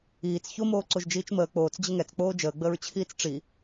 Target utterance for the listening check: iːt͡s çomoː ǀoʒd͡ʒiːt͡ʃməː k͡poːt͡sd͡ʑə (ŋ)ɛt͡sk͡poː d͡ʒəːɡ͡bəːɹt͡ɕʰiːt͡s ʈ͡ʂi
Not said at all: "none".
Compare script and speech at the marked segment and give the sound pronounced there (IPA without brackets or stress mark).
ŋ